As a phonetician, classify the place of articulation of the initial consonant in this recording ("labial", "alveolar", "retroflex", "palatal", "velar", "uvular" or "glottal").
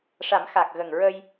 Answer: retroflex